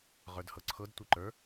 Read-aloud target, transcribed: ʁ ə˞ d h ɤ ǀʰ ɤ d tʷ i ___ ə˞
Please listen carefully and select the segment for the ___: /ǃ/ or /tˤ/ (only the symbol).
ǃ